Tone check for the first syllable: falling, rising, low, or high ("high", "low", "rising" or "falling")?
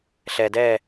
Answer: low